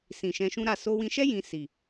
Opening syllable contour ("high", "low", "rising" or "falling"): low